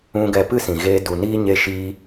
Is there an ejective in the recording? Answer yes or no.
no